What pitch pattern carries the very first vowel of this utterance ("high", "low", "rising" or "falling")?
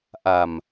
low